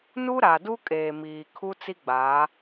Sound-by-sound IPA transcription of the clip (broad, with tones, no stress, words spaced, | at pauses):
nu˦ɾa˨ du˦kʼeː˨miː˨ kʰu˦ t͡si˦ɡ͡baː˨˦